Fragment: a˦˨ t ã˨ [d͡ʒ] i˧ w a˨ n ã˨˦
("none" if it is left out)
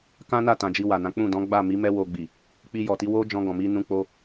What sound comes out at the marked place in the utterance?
d͡ʒ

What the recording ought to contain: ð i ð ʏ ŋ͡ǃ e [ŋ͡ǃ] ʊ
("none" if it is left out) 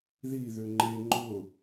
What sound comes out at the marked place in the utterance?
ŋ͡ǃ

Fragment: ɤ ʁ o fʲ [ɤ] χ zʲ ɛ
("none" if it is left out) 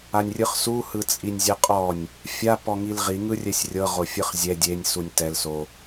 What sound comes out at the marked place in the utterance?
ɯ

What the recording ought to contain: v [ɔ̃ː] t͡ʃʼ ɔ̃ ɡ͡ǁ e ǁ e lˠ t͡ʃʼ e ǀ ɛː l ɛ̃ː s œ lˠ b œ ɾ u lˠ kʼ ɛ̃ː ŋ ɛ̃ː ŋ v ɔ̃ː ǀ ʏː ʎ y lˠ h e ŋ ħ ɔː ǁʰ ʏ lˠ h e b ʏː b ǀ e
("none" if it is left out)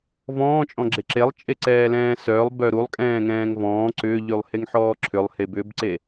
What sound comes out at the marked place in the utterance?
ɔ̃ː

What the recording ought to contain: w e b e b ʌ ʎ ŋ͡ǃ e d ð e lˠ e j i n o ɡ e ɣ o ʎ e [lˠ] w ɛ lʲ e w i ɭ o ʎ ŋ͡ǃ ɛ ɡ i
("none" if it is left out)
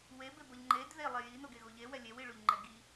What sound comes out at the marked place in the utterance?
none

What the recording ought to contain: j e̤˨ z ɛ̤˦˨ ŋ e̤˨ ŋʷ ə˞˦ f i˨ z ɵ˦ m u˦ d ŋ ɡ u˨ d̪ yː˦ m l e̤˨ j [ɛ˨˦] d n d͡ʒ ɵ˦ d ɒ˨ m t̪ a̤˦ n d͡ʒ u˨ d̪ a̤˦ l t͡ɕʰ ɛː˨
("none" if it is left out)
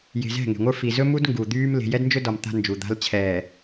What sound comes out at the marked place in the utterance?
ɛ˦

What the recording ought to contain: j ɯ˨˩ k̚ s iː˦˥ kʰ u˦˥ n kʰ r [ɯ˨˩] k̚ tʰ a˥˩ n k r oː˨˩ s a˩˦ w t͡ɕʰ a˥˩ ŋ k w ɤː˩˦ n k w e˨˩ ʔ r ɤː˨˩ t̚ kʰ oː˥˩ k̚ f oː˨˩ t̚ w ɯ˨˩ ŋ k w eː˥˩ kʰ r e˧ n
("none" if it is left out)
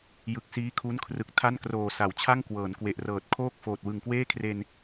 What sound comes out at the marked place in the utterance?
ɯ˨˩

